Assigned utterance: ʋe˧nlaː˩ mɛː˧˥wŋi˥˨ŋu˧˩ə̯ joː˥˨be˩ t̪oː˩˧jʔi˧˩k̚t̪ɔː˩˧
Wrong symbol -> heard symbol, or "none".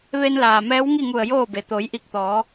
none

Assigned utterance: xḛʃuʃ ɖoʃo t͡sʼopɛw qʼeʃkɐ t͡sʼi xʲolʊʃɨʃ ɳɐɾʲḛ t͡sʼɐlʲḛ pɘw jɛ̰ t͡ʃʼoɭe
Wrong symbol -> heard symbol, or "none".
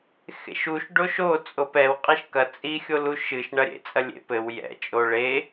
ʊ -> u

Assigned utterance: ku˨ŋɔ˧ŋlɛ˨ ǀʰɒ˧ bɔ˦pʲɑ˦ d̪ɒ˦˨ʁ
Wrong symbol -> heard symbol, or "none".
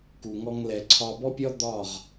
ɑ˦ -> ɒ˦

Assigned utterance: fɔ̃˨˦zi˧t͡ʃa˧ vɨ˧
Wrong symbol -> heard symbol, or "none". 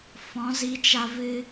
none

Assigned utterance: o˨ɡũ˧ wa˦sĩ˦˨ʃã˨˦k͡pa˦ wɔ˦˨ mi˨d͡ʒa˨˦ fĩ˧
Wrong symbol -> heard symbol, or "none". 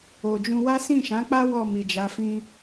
ɡ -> d͡ʒ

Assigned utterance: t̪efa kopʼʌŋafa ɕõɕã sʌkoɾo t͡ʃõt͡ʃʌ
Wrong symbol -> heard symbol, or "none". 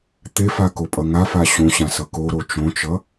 none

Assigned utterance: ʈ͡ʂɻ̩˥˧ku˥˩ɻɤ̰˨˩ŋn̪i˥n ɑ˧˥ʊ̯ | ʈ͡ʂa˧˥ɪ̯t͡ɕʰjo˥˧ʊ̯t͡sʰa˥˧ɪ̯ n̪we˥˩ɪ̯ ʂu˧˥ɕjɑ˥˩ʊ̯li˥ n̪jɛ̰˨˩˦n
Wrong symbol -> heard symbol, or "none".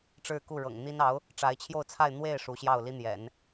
none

